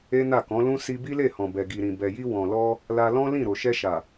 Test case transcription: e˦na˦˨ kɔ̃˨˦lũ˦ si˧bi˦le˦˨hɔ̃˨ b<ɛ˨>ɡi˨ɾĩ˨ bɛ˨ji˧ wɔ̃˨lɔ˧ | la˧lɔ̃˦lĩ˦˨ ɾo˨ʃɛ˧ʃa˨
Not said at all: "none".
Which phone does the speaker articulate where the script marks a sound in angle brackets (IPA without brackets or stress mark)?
ɛ˨